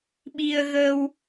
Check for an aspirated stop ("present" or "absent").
absent